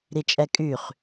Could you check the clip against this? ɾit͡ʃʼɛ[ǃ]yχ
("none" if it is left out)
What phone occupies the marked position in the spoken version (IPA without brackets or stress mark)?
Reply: kʼ